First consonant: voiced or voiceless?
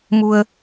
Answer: voiced